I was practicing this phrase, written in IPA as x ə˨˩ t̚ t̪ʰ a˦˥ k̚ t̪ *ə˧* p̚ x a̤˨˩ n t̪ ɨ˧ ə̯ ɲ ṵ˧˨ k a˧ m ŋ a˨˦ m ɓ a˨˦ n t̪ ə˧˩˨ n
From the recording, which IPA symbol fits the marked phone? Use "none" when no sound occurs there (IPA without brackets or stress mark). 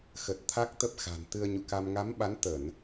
ə˦˥